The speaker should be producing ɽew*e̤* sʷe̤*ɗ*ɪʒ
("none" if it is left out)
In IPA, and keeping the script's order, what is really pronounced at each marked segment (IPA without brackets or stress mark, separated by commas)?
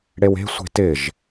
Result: e̤, t